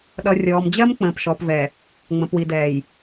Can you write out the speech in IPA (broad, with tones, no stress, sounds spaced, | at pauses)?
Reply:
ɗ ʌ˨ rʲ ɔː˨ m d͡ʑ ɜ˦ m k͡p ə̃ː˨ p ʃ ɔː˨ p v ɛ˨ | ŋ͡m ə̃˨ p w i˨ d ɛː˨ j